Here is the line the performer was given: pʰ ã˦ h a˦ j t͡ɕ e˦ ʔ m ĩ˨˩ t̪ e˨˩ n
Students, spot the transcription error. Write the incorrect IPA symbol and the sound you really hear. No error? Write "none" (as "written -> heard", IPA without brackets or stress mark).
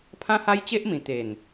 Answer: none